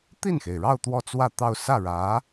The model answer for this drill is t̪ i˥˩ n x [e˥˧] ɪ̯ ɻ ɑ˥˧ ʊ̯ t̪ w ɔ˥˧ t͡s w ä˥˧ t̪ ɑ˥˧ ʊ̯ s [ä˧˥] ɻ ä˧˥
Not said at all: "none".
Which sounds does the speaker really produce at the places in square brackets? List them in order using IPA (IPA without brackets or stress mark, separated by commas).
e˩, ä˥˩